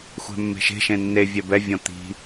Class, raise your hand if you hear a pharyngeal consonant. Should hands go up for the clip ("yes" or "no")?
no